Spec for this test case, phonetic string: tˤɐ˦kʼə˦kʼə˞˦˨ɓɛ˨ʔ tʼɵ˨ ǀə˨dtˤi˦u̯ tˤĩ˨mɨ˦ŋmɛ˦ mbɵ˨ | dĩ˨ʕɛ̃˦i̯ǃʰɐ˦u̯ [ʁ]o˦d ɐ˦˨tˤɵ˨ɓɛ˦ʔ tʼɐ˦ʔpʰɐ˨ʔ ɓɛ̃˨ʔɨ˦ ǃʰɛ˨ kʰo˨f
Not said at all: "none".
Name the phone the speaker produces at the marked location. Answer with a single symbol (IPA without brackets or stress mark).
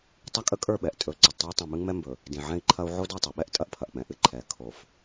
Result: ʕ